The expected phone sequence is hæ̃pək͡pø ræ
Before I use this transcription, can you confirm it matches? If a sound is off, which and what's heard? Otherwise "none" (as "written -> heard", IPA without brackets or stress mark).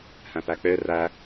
ə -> æ